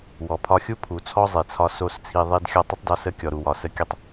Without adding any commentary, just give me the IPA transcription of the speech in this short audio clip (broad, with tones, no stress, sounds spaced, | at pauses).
w ɔ˨ pʰ ɒ˧ xʲ u˦ pʰ u˨ t͡sʰ ɔ˦ zˤ i˨ t͡sʰ ɒ˧ s o˦ s t͡sʰ i˧ ðˤ i˦ d xʲ ɔ˧ tˤ ə˦ tˤ d ɒ˧ s ə˧ kʲ ɔ˨ ɾ u˨ w ɒ˨ s ə˧ kʲ ə˦ tˤ